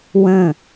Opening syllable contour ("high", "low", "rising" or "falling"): falling